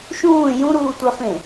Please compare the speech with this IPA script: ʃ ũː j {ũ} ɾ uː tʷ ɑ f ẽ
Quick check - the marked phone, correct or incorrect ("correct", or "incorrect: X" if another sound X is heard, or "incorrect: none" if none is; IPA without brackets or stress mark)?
correct